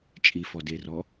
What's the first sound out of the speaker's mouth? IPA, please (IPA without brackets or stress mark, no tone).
t͡ʃʼ